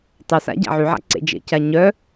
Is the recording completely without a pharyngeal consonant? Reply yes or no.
no